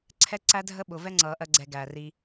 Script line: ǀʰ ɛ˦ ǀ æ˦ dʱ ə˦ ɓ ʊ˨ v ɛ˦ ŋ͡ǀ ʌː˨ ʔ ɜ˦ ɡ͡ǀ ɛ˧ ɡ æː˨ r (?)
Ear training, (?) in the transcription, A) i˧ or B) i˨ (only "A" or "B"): A